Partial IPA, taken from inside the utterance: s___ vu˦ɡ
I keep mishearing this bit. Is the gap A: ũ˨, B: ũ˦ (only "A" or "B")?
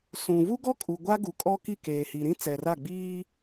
A